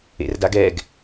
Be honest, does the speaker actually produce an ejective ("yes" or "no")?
no